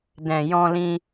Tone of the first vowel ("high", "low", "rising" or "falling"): low